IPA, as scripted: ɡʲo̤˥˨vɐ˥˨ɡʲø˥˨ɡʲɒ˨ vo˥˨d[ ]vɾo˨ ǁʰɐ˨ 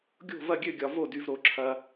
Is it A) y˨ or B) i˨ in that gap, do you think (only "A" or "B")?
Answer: A